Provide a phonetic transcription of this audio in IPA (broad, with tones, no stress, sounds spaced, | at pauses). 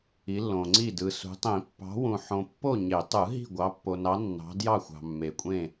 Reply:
i˨˦ lː õ˨ ŋ͡ǀ i˥˨ d ɯ˨ s ṳ˨˦ tˤ ĩ˨˩˦ pː ɑ̤˨˦ w ũ˨ ħ õ˨ pː o˥˨ ɲ e˨˩˦ tˤ ɯ˨˩˦ ɦ i̤˥˨ ɡʷ ɑ˨˦ pː o˨ n ɑ˨˦ nː ɑ̤˨˦ d j ɑ˥˨ xʷ ɑ̤˨ mː e˨ kʷʼ ẽ˥˨